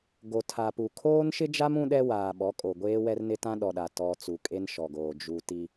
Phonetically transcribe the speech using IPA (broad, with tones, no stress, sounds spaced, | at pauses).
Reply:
ɡ o˨ tʰ a˨ p u˨ kʰ oː˦ n ʃ ɪ˦ d͡ʒ a˦ m ũ˦ ɗ ɛ˦ w aː˨ ɓ ɔ˨˦ kʼ o˨ ɡʷ eː˦ w ɛ˦ r n ɪ˦ t ã˦ ɗ ɔ˨ ɗ a˨ t ɔ˨ t͡s u˨ kʼ e˦ n ʃ ɔ˨ ɡ oː˨ d͡ʒ u˨ t i˦